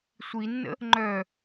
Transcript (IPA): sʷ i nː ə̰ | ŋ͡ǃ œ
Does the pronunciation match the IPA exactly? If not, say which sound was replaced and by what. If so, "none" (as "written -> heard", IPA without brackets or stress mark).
none